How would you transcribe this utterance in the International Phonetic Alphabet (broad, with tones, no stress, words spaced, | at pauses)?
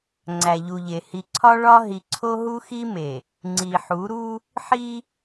ŋ͡ǀæ˨ʎu˨ʎe˨ hi˨ǀʰɒ˦ ɭɒ˦ ɦi˨ǀʰo˦ɦu˦xi˦ me˨ | ŋ͡ǀi˨ħu˨˦ɾu˦ | ħi˦